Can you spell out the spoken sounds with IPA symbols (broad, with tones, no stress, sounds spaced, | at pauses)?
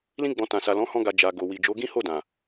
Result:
l ĩ˧ ɡ͡b ɔ̃˨ t ã˨ s a˨ l ɔ̃˨˦ h ɔ̃˧ ɡ a˨ d͡ʒ a˨ ɡ o˨ w i˨ d͡ʒ o˨˦ ɡ ĩ˦ h o˦˨ d ã˨